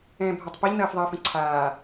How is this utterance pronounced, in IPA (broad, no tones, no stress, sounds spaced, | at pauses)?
ɛ̃ː bʱ a tˤ p ɐ ʎ n ɐː f ðˤ ɐː f ə̃ ǀʰ aː